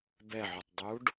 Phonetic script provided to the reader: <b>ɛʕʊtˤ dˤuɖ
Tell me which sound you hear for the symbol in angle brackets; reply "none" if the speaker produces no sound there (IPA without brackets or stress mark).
b